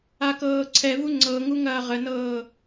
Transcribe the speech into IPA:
a k ɤː ǀʰ ɛ v u ŋ͡ǀ ɤ ŋ u ŋ ɐː ʁ ə n ɤː

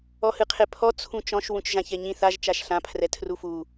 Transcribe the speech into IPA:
ɔ h ɨ qʰ e pʰ ɔ t͡sʰ ũ t͡ʃ ɔ̃ ʃ w ũ t͡ʃ ʒ ã ç ɛ ɲ ĩ θ a ʒ t͡ʃ a ʃ ɬ ã pʰ r ɛ tʰ r u f u

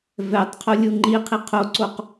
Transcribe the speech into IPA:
v ɛ tˤ qʰ o lʲ u ŋ͡ǃ i qʰ i qʰ o ǀ o q

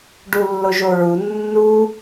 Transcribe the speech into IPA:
ɖ u lː o ʒ o ɹ u nː u

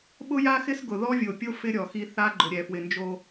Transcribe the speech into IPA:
ɓ ʊ˦ j a˦ x ɪ˦ s ɡ ʊ˨ ð ɔ˦ vʲ o˨ pʲ o˦ f ɪ˦ ɾʲ ɔ˨ x i˦ θ a˦ ɡ͡ǃ ʊ˨ ɾʲ ɛ˨ f w ɪ˨ n d͡ʒ o˦

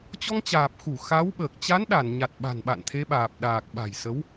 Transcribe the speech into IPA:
t͡ɕ ɔ˧ ŋ t͡ɕ aː˨˩ p̚ x u˧˩ x a˨˦ w ɓ əː˨˩ k̚ t͡ɕ a˨˦ n ɗ a˧˩ n ɲ a˨˩ t̚ ɓ a̤˨˩ n ɓ a̰˧˨ n t̪ʰ e˨˦ ɓ aː˨˩ p̚ ɗ aː˨˩ k̚ ɓ a̤˨˩ j s ə˨˦ w

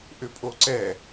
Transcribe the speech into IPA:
ʔ ʏ pʼ o ǀ ɛ

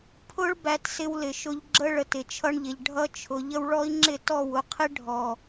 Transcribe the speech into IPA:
pʰ ʊ˦ ɭ b æ˧ t s ɪ˧ w l ɪ˨ ʃ ʊ˧ ʎ ɡ͡ǁ ə˦ ɭ ə˨ t ɪ˨ t͡ʃʰ ʌ˧ ɳ ʎ ɪ˨ ʎ ɖʱ ʌ˧ t͡ʃʰ ʊ˨ ʎ ə˧ w ɭ ɔ˦ i̯ ŋ͡ǁ ɪ˦˨ t ɔ˦˨ w ʊ˧ qʰ ɪ˦ ɖʱ ɔ˨

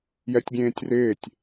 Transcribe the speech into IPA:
j ɛ tʲ ɡʲ ẽː tʲ r ɪː tʲ

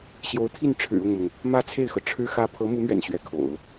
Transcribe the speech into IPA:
ɕ j o˧˥ ʊ̯ t̪ʰ i˥˩ n ʈ͡ʂʰ ɻ̩˨˩ ʊ˥˩ ŋ m ʊ˩ ŋ | m ä˥˧ t͡sʰ e˥˩ ɪ̯ x ɤ˩ ʈ͡ʂʰ ɻ̩˥ x ä˥ pʰ ɤ˧˥ m u˧˥ m ɥ ɛ̰˨˩ n ɕ ɥ ɛ˧˥ kʰ o̰˨˩˦ ʊ̯

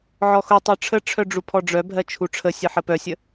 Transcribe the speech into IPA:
ʕ ɔ x ʊ tˤ œ ʈ͡ʂʰ ə ʈ͡ʂʰ œ ɖ͡ʐ u pʰ ɔ ɖ͡ʐ œ bʱ ɜ t͡ʃʰ u ʈ͡ʂʰ ə sʲ ə ħ ə p œ sʲ ə

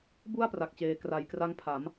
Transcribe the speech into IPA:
b u˥˩ a̯ p r a˨˩ k̚ t͡ɕ eː˨˩ k r a˨˩ j k r a˦˥ ŋ pʰ a˩˦ m

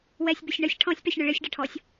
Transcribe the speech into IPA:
w ɛ sʲ b ɪ sʲ ɳ ə sʲ ʈʰ ɔ̃ sʲ p ɛ sʲ ɳ ʊ ɭ ɪ sʲ ɖ ə ʈʰ ɔ sʲ

